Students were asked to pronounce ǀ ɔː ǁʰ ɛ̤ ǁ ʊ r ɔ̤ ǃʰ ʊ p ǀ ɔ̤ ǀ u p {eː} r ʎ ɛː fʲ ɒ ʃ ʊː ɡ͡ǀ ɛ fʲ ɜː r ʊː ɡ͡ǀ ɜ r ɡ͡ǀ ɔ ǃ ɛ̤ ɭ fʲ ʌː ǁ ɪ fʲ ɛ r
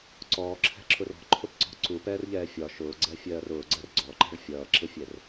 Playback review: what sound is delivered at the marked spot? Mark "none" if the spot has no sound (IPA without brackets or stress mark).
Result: ɛː